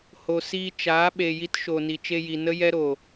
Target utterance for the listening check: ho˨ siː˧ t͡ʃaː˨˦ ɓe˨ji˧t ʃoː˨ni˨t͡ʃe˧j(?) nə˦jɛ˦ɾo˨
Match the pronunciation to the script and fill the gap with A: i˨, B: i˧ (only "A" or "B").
A